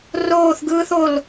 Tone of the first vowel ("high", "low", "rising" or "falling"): falling